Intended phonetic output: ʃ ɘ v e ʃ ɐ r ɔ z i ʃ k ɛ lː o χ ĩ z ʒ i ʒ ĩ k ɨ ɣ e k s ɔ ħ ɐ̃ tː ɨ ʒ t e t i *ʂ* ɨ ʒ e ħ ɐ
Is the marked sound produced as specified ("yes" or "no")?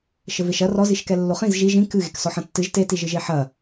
no